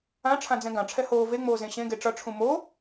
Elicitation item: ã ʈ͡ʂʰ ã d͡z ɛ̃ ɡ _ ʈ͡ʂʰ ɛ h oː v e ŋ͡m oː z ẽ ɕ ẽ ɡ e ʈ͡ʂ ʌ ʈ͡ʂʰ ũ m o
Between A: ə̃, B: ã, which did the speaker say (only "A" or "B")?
B